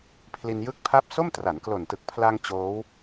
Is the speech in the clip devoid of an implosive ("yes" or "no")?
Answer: yes